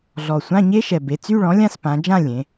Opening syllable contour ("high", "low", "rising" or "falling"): low